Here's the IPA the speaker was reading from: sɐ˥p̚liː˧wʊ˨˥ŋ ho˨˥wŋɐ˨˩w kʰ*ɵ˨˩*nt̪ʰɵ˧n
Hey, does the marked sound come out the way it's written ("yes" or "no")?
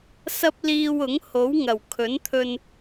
no